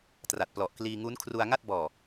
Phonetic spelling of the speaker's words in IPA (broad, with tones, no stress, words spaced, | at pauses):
tra˨˩t̚ plɔ˨˩ʔkliː˧ŋu˦˥n kʰru˧a̯ŋa˥˩t̚bɔː˨˩